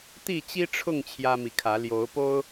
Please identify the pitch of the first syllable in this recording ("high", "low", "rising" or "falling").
falling